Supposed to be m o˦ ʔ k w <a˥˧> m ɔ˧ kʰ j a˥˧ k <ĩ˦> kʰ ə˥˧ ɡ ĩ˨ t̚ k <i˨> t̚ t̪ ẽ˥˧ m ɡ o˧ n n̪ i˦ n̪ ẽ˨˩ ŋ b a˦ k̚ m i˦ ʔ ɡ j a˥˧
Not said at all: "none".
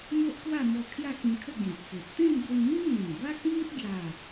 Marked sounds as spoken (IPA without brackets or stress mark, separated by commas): a˥˧, ĩ˧, e˨